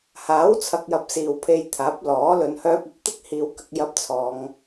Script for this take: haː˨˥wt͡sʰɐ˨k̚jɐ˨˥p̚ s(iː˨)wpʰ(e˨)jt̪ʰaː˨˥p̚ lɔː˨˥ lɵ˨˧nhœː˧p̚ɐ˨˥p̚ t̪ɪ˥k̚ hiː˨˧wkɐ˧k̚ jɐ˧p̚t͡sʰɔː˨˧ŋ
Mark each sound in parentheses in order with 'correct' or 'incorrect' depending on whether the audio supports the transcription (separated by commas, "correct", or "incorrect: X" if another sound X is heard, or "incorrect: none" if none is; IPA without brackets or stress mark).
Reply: correct, incorrect: e˧